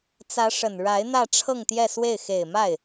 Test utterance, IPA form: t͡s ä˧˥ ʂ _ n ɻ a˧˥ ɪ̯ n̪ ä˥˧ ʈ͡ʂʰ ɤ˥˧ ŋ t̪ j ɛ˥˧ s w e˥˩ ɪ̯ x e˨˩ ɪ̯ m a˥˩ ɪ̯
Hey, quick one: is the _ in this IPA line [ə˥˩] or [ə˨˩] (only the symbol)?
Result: ə˨˩